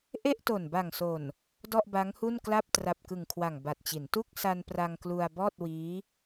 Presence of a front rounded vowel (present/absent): absent